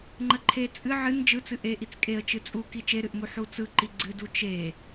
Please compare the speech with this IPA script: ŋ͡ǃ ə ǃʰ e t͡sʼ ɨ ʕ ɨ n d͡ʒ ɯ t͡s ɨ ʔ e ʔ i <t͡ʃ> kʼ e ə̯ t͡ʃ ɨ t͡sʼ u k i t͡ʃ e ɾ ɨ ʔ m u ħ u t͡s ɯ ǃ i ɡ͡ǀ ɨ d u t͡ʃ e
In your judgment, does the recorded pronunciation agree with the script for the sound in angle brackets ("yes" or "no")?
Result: no